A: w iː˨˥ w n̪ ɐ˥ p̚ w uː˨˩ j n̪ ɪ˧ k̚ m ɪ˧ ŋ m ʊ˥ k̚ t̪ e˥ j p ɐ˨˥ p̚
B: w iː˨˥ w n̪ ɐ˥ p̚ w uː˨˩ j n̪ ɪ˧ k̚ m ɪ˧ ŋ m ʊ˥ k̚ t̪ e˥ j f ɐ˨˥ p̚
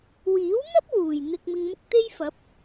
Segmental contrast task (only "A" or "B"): B